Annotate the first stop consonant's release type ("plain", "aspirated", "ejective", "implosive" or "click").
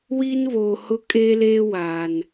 ejective